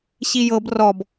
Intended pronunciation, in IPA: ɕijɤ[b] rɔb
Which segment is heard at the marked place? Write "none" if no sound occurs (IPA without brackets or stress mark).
b